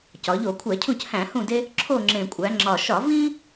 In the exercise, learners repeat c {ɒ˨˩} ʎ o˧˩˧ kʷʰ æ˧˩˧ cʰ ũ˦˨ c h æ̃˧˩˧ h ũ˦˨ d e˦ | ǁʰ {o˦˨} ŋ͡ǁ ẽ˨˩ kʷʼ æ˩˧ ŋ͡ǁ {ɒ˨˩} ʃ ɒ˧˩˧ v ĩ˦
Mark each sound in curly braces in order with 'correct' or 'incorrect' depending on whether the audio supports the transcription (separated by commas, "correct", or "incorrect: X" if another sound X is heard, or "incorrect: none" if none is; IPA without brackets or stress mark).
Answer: incorrect: ɒ˩˧, correct, correct